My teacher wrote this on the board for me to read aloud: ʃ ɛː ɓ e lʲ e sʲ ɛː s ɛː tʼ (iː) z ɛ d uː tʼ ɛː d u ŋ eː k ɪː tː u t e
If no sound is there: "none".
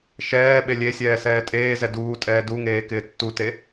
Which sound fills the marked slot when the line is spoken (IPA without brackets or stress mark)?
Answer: eː